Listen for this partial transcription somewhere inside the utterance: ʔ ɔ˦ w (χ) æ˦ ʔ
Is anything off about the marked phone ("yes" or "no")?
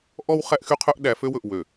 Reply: no